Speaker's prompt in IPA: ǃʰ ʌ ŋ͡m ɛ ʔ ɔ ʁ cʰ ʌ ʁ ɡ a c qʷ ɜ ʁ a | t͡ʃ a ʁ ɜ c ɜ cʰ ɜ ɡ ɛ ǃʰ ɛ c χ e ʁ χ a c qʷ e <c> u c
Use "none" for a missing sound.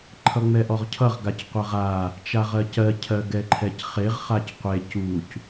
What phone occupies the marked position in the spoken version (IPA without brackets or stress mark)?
c